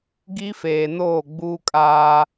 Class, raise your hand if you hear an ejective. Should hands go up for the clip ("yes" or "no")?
yes